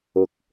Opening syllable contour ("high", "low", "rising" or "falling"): high